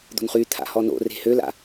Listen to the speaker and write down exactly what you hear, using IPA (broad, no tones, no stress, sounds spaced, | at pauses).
d̪ o̤ n χ y t̪ʰ a̰ h ɔ n o̰ r e̤ h ø l a̰